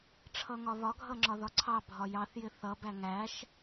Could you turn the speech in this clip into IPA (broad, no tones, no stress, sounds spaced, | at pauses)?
ʈ͡ʂʰ ʌ ŋ ɒ β ɒ ɡʱ ʌ ŋ͡ǁ ɒ ð ɒ ǀʰ ɑ bʱ ɒ j ɑ θ j ɪ θ ʌ b æ ŋ æ ʃ